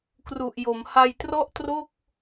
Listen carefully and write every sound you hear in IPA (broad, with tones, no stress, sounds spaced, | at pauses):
k r u˨˩ ʔ j o˩˦ m h a˧ j t r ɔ˥˩ ʔ t r o˥˩ k̚